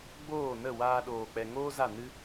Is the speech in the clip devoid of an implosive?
no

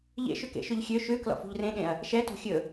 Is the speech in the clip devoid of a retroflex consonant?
yes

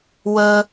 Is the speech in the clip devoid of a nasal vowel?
yes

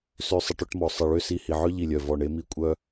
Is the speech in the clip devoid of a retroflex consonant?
no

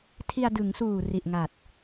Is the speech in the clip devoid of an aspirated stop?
no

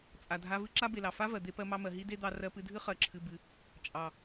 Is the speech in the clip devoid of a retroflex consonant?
yes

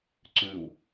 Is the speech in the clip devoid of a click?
no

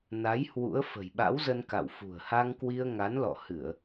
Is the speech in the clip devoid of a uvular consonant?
yes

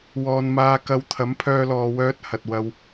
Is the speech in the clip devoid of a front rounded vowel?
no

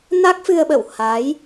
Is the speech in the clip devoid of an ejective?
yes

